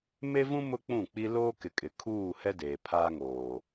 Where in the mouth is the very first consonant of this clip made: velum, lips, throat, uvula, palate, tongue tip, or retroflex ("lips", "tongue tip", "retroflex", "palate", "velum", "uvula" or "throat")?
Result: lips